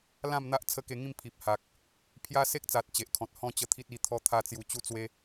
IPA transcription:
lã˥˧mn̪a˦ʔ t͡sʰə˦ke˧ŋĩ˥˧m pʰi˨p̚ha˨k̚ | pʰja˦se˦k̚t͡sa˨t̚ t͡ɕe˨ʔkʰɔ̃˨t̚ hɔ̃˥˧t͡ɕə˧ t̪ʰi˦t̚i˧t̪ʰɔ˦ t̪ʰa˧t͡sju˨˩ t͡ɕu˥˧t͡swe˦

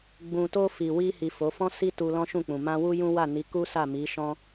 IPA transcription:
ɡ͡bũ˨to˧ fi˨ wi˧hi˨ fo˨˦ fɔ̃˦si˦ tu˧lɔ̃˦ʃũ˦˨k͡pũ˨ mã˧wu˦jũ˦ wa˦˨ni˨˦ku˦ sa˦˨mi˨˦ʃɔ̃˦

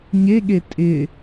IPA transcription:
ɲeɠe tʼɪ

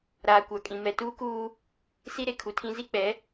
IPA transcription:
ɾaː˨kʷa˨kʼĩ˨ mɛ˨tuː˦kuː˦ | si˦ ɾe˦kʰu˨tʰĩ˦ zi˦k͡pɛ˨˦

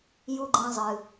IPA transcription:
ju˨ɡ͡ǃẽ˨zˤɨ˩

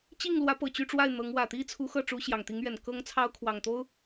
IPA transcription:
t͡ɕi˥˩ŋlwä˧˥ pɤ˨˩ t͡ɕy˥˧ʈ͡ʂwa˥˩ɪ̯ n̪ɤ˧˥ŋ wä˨˩t̪i˥t͡sʰu˧˥ xɤ˥˩ʈ͡ʂu˧˥ ɕjɑ˨˩ŋt̪i˧˥ŋɥɛ˨˩n kɤ˥ŋt͡sʰɑ˥ʊ̯kʰwɑ˨˩ŋ t̪o˥ʊ̯

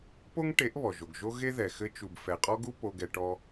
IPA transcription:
po˦ŋʈe˨˦ʔ βɔ˨ʒo˨ɡ ʒo˦ɣe˦ðɛ˨ xɘ˧t͡ʃu˨b fɛ˨qʼɔ˦ɡu˦ po˧ɡɛ˧ʈɔ˧

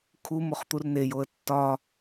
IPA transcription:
kʰumoχt̪ur nejoə̯ tːɒ

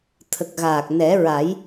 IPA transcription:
t̪ʰə˨˩k̚ɣaː˨˩k̚ nɛ˨˩˦ɹa˨˩˦j

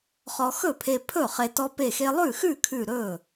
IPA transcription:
χɔ˧ xɵ˥˩pʰe˧pʰɵ˥˩ χe˧ tɔ˧pe˧˩xe˧lˠʉ˥˩ xʉ˥˩kʰʉ˧˩ ɾɵ˥˩

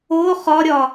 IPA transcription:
o χɒɾʲɒ

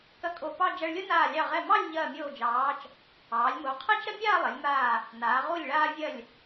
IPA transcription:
kɐ˧kʼo˧˩pɑ˥˧ d͡ʒɐ˧ɭlʲo˥naː˧˩lʲɑ˧˩ ʁɛ˧˩mɑ˥˧lʲ ʎɐː˧˩mʲoː˧˩d͡ʒɑː˩˧t͡ʃ | ɑː˩˧lʲmo˩˧ qʰɛ˥t͡ʃɾɐ˥mʲaː˥˧lˠɐ˩˧lʲ maː˧˩ | naː˩˧ ʁu˧˩lʲɭaː˧vʲɐ˧˩lʲ

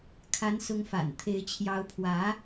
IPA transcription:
kʰa˧˥nsʊ˧˥ŋfa̰˨˩n t̪ʰe˧˥ɪ̯t͡ɕʰjɑ˧˥ʊ̯pʰwä˧˥

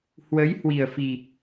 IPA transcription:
hwə˨˦j hwi˨˩ə̯fi˨˩

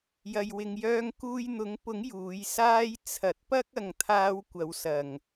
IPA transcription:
jɐ˧jwɪ˧ŋjœː˥ŋ kuː˧jn̪ʊ˨˥ŋpʊ˨˥ŋ juː˨˥j saː˥j t͡sʰɐ˨˥t̚pɐ˥k̚ ɐ˨ŋt̪ʰaː˧w kʷɐ˨˧wsɐ˨˩ŋ

